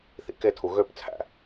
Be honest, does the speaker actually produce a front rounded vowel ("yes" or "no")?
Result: yes